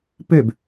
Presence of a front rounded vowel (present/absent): present